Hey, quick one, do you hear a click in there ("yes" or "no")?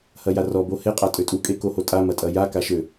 no